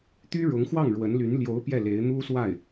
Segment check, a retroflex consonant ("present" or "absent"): present